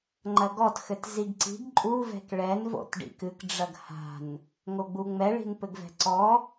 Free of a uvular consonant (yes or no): yes